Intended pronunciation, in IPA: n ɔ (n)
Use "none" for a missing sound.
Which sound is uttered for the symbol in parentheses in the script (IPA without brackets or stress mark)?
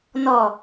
none